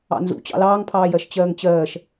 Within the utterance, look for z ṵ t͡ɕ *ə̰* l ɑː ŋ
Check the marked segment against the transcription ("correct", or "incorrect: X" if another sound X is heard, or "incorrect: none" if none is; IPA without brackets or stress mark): incorrect: ɑ̰